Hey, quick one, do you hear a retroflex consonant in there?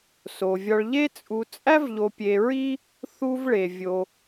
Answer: yes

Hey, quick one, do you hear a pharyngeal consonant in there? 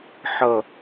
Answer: yes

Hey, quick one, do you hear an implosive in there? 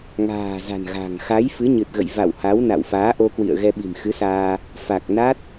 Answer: yes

